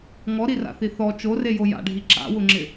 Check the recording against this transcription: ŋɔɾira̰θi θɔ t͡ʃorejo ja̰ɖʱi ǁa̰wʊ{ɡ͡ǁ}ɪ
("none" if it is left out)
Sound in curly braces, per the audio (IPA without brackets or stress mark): ŋ͡ǁ